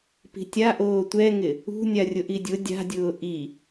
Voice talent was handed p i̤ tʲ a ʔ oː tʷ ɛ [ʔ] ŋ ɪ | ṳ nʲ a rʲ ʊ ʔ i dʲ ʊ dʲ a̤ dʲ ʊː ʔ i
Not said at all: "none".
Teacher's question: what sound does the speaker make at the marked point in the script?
none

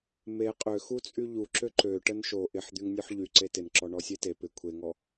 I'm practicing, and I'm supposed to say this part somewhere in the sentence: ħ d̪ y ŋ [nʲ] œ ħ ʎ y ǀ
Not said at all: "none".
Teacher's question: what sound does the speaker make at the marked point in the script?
nʲ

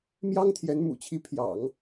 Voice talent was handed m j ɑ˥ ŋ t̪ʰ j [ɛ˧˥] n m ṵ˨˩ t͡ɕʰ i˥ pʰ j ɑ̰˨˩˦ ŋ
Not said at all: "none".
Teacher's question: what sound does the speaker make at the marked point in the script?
ɛ˧˥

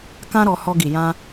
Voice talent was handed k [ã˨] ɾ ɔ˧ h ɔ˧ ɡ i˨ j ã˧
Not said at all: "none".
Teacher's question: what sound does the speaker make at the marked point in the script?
ã˦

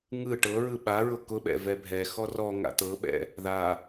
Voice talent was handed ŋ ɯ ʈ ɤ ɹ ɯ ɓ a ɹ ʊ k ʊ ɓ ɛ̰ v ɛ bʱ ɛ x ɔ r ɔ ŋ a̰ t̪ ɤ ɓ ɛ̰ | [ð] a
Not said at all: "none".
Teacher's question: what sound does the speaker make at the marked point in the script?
ð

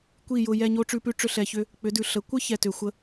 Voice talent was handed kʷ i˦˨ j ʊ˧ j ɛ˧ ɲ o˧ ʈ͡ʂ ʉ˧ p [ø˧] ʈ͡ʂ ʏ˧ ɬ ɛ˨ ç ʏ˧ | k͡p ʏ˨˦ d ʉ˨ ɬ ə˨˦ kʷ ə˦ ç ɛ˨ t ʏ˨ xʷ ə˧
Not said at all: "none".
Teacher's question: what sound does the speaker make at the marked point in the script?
ʉ˧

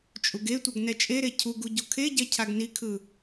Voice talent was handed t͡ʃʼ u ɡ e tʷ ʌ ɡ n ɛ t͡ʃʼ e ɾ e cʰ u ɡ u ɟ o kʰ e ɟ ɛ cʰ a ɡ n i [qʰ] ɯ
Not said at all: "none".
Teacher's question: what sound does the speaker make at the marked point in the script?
kʰ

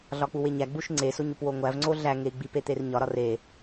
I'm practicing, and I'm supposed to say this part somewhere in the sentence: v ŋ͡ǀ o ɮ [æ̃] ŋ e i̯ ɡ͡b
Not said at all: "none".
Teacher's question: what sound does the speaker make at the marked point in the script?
æ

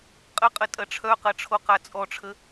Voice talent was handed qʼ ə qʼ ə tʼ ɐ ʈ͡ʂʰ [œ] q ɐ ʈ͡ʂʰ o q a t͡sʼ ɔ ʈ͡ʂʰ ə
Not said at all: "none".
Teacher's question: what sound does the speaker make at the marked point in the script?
œ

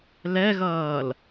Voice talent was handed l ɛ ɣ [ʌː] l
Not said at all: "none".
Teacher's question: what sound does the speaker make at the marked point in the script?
ʌː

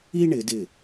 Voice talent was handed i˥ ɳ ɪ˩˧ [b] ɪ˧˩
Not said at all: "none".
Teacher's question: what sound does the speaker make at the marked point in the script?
d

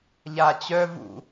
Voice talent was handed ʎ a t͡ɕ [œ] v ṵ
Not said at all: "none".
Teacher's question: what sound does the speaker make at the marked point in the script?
œ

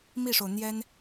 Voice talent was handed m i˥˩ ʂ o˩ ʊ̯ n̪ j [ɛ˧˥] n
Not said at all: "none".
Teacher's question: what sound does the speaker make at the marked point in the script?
ɛ˥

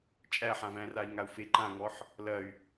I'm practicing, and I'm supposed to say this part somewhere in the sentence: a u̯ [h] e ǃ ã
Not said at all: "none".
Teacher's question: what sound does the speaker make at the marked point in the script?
f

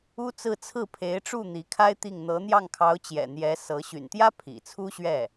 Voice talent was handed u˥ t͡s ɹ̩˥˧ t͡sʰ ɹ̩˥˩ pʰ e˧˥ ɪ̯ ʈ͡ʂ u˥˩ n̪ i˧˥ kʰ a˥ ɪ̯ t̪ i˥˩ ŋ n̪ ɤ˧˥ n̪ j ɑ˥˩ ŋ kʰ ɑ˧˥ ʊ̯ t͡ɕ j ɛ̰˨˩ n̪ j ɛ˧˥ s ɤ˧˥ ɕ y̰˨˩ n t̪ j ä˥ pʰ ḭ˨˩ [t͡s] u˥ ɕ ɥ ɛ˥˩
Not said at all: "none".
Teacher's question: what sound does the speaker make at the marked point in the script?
t͡sʰ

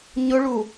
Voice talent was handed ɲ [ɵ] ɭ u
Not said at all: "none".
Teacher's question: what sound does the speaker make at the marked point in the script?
ʊ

